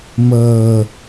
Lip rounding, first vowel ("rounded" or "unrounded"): unrounded